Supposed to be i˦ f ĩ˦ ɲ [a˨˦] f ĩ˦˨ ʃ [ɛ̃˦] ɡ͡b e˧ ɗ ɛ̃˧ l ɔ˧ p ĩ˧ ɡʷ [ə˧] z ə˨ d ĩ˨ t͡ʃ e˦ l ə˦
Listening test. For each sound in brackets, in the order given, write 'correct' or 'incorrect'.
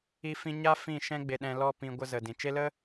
incorrect, correct, correct

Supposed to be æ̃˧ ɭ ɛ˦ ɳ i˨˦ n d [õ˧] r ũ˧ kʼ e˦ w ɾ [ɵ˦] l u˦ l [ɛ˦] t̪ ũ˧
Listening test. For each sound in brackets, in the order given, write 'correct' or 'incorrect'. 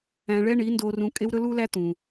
incorrect, correct, incorrect

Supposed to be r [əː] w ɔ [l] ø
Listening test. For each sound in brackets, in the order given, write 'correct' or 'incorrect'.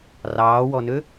incorrect, incorrect

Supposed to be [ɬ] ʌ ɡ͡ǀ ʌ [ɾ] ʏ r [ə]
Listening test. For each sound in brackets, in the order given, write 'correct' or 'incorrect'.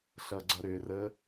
correct, correct, correct

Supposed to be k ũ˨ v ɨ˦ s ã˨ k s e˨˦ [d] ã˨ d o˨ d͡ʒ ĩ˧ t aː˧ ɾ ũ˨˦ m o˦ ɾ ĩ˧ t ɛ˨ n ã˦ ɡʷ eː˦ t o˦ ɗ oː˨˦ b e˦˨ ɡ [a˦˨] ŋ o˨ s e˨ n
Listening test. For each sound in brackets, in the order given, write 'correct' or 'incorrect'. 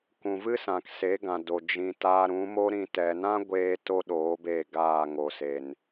incorrect, incorrect

